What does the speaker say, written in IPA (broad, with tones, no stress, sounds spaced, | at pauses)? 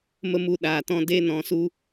m ə˦ m u˧ ɗ aː˨ t ɔ̃˦ d e˦ n ɔ̃˨˦ s u˦